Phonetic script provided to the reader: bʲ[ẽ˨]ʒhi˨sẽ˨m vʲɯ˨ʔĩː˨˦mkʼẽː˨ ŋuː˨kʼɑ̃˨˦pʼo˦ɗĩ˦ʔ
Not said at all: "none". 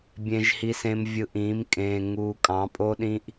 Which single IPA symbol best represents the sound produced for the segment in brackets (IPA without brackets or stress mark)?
ẽ˨